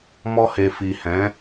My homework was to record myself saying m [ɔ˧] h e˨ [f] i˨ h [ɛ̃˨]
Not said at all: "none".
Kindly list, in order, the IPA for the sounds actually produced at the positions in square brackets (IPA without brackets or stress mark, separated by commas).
ɔ˧, f, ɛ̃˨˦